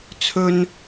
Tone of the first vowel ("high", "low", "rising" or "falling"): high